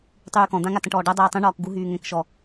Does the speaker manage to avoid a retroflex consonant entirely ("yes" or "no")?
no